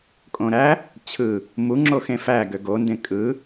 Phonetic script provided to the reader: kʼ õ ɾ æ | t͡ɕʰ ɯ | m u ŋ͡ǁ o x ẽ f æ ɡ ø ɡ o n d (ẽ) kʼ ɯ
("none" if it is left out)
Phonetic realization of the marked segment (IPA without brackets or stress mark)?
ẽ